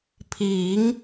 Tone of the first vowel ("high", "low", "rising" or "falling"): rising